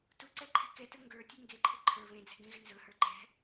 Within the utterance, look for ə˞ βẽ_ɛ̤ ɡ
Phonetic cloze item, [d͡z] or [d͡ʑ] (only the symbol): d͡z